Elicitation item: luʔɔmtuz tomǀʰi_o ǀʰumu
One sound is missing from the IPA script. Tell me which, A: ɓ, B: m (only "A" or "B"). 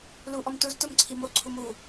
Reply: B